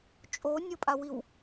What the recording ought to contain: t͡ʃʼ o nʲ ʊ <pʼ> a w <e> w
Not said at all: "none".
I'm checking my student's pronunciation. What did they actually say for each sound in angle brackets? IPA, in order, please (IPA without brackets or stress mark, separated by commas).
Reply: pʼ, i